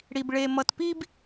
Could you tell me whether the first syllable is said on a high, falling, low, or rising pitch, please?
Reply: low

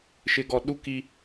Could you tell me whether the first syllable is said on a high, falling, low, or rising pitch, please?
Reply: low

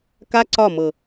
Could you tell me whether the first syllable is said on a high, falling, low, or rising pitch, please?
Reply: high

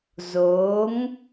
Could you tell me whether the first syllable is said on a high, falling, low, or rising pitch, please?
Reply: rising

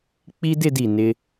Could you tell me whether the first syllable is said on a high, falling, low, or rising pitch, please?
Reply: high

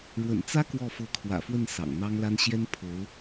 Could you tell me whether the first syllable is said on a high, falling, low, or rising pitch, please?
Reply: low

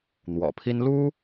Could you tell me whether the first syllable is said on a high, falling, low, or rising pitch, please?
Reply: low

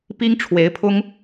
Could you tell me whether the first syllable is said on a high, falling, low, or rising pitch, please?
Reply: high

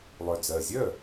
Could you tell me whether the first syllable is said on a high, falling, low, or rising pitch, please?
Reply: low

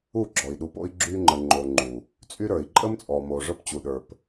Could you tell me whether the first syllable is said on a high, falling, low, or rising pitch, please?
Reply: falling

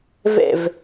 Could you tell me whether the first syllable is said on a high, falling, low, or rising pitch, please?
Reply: falling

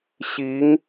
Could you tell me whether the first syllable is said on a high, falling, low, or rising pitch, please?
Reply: rising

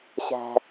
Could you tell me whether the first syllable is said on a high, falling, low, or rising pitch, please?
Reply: low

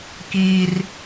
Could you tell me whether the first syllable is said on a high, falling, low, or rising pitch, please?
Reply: high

